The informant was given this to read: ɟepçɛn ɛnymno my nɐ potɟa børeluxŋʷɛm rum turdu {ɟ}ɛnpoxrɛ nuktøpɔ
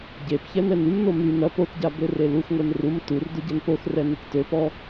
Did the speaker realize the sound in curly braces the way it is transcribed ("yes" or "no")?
yes